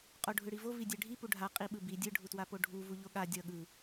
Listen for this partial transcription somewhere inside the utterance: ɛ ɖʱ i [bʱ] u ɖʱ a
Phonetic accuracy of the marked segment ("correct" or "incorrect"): incorrect